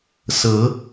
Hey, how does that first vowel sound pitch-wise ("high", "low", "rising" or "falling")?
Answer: rising